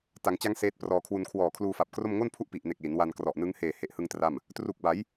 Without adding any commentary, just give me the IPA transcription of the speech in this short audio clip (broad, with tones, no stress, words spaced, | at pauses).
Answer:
ta˩˦ŋt͡ɕa˦˥ŋ seː˦˥t̚prɔː˧kʰwu˧n kʰwɔː˨˩kʰluː˧fa˨˩p̚kro˥˩m ŋo˥˩npʰu˥˩ʔ pi˨˩ʔne˨˩k̚ li˩˦n wa˧nkrɔ˨˩ʔnɯ˦˥ŋ heː˨˩he˨˩ʔhɯ˧ŋ tra˥˩m | tru˨˩k̚ba˩˦j